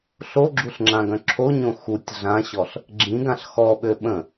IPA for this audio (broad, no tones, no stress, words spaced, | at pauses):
ɬoɡ͡ǁuɬŋ͡ǁãɡœ̃ ǁʰoɲõ xutʲ ɮãɕɔɬ | ɡ͡ǁĩɡãɬ xɔɓø ɓə̃